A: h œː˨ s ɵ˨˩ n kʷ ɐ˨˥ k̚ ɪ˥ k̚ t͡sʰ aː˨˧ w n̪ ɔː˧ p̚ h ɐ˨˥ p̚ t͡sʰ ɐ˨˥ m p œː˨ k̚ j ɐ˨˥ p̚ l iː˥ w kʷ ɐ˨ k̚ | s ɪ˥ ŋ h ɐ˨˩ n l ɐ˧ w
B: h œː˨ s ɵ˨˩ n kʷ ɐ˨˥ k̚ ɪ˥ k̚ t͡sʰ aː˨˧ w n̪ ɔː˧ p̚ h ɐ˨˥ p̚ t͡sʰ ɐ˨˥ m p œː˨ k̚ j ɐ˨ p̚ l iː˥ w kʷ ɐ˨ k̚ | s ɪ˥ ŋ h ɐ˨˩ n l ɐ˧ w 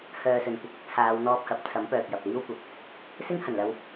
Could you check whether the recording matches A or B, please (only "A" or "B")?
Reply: B